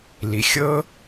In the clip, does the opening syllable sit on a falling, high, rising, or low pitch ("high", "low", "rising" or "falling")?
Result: low